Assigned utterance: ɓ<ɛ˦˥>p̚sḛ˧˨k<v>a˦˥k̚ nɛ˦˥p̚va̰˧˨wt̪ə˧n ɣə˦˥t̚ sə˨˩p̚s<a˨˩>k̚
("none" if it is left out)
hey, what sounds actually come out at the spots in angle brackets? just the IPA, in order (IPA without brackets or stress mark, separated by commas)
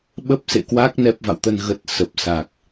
ə˦˥, w, a˨˩